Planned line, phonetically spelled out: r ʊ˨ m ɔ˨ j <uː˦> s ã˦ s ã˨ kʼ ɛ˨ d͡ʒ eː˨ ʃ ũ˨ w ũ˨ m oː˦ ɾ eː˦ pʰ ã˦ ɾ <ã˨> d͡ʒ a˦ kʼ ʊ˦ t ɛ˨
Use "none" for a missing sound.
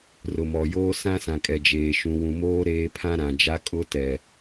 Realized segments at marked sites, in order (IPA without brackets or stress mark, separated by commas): oː˦, ã˨